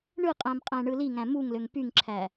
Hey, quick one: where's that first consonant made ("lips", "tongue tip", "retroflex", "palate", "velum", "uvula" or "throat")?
retroflex